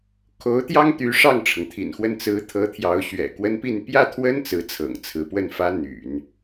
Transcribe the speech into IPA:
kʰo˧˥ʊ̯t̪jɑ˥ŋt̪y˧˥ ʂɑ˥˩ŋʈ͡ʂʰɤ˩ŋt̪ʰḭ˨˩nxwə˥˩n t͡sɹ̩˧˥t̪ʰɤ˧˥ t̪ʰjɑ˧˥ʊ̯ɕɥɛ̰˨˩kwə˥npi˥˧n pjä˥˩t̪ʰwə˥n t͡sɹ̩˧˥t͡sʰɤ̰˨˩ŋt͡sʰɹ̩˧˥pwə˥˩n fä˥n̪y̰˨˩˦n

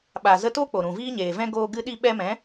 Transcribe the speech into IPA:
ɓa˨ zə˦ to˦k͡po˨ ɾũ˨viː˦ɲeː˨vɛ̃˦ ɡoː˧ ɡɨ˧ɗi˧ɓɛ˧ mɛ̃˨˦

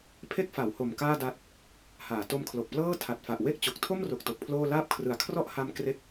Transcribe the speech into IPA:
pʰe˦˥k̚fa˩˦who˨˩m kaː˥˩da˦˥t̚ | haː˩˦ to˧mkʰlo˨˩k̚plɤː˥˩ tʰa˨˩t̚fa˨˩ʔ we˦˥k̚t͡ɕo˨˩k̚tʰo˥˩mro˨˩k̚ to˨˩k̚pʰloː˥˩ laː˥˩p̚kʰrɯ˨˩a̯ kʰrɔ˦˥ʔha˧m kre˥˩k̚

